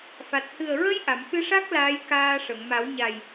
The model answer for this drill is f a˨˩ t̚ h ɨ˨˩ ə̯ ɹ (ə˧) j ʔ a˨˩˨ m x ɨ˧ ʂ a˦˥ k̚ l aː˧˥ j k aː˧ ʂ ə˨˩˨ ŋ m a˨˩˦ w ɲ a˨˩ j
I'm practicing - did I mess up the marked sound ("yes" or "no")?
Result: no